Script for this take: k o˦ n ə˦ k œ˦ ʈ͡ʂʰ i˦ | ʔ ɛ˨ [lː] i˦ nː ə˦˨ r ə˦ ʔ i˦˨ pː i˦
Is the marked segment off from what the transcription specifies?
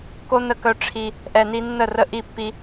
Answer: yes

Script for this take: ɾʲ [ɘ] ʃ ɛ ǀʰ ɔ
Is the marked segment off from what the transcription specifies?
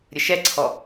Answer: no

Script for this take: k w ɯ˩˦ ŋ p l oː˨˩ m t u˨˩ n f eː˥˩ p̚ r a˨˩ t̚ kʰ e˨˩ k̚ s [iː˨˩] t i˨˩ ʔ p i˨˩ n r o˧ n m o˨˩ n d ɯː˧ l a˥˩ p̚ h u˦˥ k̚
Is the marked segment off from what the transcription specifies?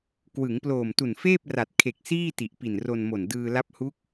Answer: yes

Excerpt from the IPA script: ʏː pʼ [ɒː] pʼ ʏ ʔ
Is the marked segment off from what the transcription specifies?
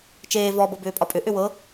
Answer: yes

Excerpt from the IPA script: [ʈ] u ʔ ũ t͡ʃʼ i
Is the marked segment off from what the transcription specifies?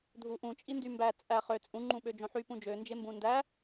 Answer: yes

